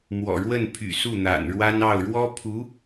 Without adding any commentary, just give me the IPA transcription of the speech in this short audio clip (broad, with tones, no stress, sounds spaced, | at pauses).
m w ɔ̰˨˩ ɻ w ə˥˩ n pʰ y̰˨˩ s u˥˩ n̪ a̰˨˩ n ɻ w a˥ n ɑ˥˩ ʊ̯ ɻ w ɔ˥ pʰ u˧˥